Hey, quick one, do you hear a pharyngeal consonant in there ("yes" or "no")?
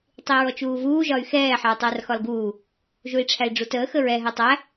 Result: yes